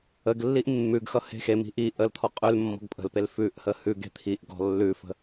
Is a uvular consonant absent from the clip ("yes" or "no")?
no